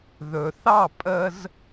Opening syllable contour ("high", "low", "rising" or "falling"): low